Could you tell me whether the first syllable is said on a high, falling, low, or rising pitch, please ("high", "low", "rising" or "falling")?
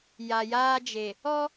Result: low